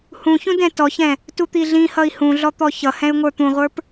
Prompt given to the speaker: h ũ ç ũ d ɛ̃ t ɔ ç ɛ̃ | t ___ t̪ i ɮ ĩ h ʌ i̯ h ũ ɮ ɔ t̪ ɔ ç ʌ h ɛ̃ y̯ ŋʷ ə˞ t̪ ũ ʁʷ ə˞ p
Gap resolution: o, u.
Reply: u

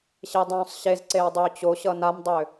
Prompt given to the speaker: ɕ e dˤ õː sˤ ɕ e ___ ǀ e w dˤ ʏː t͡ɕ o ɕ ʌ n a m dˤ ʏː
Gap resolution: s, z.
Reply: z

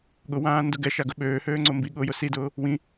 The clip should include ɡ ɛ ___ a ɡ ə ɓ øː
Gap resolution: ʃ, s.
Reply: ʃ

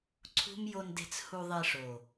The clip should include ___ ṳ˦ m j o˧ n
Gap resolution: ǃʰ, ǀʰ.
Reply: ǀʰ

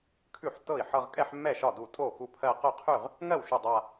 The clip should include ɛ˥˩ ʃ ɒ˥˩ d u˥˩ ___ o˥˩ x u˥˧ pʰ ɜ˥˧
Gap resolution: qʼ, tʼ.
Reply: tʼ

